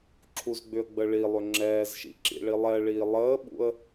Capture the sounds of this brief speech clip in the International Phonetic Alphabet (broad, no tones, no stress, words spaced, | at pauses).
ǁʰuzɡ͡bʏə̯ɡ͡bə ɭilˠʏ ŋ͡ǁɛːzʃḭǁḭɭi lˠɛɭiː lˠəːɓṵə̯